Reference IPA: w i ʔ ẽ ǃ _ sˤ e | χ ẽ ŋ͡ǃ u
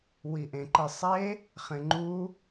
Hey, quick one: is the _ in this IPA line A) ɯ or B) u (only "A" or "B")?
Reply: A